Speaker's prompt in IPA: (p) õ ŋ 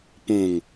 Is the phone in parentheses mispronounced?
no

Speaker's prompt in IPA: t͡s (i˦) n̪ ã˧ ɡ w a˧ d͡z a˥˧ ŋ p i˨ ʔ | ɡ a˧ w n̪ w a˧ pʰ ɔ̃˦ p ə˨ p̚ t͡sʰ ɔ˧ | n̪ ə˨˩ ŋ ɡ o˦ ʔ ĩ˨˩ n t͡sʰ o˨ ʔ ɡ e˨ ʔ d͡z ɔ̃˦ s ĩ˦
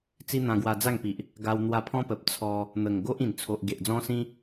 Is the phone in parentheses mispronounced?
no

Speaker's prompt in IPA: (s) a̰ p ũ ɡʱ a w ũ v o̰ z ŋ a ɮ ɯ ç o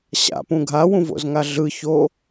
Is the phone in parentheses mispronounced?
yes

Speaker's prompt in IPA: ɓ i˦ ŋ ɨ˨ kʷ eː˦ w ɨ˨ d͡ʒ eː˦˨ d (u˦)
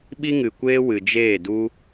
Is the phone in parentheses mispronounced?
no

